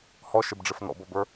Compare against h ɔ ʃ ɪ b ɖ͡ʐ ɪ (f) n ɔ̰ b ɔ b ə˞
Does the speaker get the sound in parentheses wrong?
no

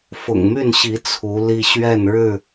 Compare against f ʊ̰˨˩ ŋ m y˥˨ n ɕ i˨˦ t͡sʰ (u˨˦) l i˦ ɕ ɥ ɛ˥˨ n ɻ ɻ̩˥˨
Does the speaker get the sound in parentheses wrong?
no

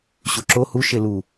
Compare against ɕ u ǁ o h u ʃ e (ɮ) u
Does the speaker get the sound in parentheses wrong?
yes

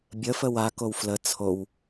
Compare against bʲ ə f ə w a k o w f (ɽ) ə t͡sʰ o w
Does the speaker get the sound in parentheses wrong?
yes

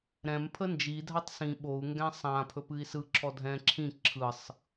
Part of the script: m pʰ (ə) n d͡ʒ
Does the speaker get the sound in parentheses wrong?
no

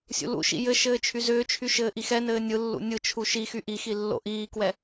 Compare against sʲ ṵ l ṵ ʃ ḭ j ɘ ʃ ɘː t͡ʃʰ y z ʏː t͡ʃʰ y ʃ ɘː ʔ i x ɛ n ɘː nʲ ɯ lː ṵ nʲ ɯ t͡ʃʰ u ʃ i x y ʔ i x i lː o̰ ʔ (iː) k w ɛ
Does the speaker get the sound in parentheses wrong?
no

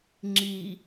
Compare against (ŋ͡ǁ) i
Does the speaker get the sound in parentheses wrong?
no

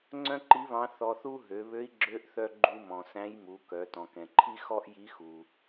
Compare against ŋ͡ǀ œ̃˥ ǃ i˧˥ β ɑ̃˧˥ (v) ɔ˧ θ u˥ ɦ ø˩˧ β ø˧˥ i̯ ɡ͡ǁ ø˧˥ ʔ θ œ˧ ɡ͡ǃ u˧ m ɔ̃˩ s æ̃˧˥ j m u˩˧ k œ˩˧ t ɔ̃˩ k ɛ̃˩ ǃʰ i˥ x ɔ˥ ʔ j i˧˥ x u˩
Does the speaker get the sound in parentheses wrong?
yes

